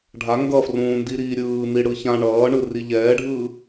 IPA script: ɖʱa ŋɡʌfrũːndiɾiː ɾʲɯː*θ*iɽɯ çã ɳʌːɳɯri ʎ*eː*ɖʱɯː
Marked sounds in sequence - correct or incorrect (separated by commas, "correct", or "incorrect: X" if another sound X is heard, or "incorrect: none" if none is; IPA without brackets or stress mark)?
incorrect: n̪, incorrect: ɛː